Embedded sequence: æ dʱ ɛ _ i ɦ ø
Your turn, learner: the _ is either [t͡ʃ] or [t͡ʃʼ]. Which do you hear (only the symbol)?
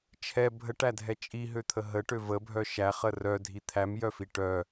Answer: t͡ʃʼ